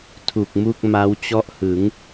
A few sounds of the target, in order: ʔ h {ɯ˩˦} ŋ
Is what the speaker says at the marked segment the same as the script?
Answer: yes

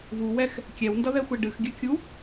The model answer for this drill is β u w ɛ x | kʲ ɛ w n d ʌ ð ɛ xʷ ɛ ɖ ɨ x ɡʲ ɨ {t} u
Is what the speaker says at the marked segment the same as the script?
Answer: no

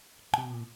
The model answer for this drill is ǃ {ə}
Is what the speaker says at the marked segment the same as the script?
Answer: no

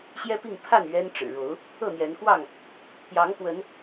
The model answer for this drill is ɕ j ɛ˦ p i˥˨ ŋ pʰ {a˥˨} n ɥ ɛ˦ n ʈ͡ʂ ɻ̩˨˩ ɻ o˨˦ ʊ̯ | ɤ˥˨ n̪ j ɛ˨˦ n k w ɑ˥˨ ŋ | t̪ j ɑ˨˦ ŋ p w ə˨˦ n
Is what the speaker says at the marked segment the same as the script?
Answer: yes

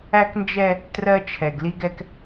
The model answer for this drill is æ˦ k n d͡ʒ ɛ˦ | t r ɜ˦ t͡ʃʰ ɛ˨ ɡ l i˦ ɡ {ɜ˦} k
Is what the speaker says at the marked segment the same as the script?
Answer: no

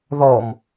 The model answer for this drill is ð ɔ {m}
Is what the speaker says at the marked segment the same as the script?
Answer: yes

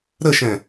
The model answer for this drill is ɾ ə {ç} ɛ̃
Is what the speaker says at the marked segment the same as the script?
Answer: no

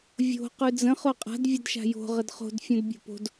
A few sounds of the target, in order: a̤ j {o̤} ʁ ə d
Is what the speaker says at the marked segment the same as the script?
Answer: yes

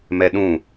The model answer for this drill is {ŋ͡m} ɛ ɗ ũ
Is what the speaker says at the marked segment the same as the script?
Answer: no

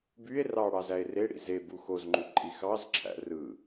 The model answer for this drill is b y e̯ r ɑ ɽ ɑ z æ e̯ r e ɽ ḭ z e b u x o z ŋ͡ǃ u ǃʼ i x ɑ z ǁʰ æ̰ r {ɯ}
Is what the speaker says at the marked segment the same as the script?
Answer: yes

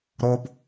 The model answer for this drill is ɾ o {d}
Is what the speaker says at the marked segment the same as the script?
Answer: no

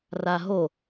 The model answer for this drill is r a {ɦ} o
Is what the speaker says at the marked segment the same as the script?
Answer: yes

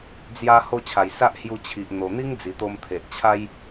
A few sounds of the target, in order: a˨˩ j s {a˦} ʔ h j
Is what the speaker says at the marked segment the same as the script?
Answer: yes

